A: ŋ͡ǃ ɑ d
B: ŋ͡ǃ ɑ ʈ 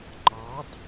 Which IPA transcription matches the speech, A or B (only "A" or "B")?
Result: A